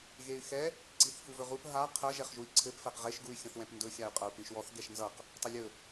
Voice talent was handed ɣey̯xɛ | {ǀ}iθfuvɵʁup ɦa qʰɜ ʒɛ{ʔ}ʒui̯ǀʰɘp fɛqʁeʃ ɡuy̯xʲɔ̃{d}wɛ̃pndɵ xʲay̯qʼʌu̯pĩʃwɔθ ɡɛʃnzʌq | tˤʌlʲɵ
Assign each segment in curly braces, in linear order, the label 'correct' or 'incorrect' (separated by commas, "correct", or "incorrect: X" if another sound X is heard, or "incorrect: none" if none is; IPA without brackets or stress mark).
correct, incorrect: χ, incorrect: θ